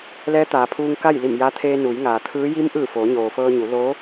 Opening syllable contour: rising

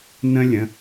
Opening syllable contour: high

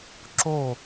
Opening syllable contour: falling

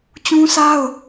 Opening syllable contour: high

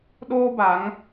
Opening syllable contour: high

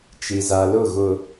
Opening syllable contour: low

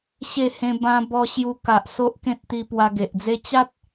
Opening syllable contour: falling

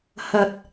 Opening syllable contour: rising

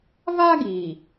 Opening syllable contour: high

